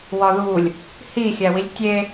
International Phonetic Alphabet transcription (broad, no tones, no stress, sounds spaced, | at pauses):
w ɒ ð u lʲ | h i xʲ æ w i lʲ tʲ e